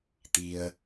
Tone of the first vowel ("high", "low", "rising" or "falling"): low